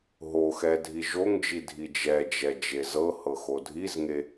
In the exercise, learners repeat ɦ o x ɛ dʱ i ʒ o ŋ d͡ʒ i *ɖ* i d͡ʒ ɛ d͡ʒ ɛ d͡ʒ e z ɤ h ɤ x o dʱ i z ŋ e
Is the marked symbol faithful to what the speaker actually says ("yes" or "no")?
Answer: no